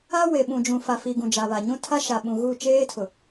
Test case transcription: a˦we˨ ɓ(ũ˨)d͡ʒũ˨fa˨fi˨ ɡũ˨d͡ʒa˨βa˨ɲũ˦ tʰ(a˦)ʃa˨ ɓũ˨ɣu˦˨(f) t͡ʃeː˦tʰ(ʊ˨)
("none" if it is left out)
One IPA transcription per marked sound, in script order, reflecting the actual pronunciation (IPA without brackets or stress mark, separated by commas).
ũ˨, a˦, none, ʊ˨